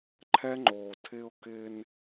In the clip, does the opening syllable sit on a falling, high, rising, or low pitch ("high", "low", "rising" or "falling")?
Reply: high